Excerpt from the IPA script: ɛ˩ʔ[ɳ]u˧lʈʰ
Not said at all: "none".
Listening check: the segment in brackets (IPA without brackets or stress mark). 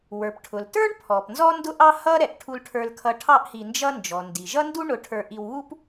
ʈʰ